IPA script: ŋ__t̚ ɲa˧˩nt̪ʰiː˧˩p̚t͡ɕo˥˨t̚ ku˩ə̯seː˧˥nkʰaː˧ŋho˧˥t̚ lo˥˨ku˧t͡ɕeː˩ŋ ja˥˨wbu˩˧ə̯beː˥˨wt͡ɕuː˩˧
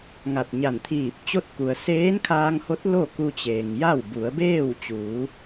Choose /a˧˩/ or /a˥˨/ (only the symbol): a˧˩